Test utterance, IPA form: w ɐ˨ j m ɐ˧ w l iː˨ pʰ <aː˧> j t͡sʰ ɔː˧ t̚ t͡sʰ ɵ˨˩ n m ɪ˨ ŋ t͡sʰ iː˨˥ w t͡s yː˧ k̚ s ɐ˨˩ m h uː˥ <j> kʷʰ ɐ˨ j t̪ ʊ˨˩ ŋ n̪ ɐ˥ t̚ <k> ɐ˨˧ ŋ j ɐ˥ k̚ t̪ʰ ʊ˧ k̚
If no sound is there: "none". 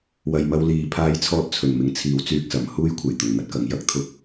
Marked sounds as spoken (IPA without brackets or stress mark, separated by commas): aː˧, j, k